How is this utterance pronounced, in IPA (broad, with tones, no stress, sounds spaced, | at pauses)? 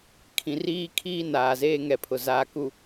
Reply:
kʰ ĩ˨ r iː˦ kʰ iː˦ n aː˨ z eː˦ ŋ ɛ˨ pʰ ʊ˨ z aː˨ k u˨